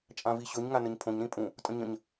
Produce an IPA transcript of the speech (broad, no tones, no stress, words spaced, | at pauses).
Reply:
t͡ʃʼãviɕɵɲ ŋanəɲpʰõɲ ɾĩpʼũ | tʼə̃ɲə̃ɲ